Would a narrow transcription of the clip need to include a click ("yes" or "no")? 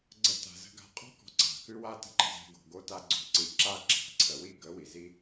yes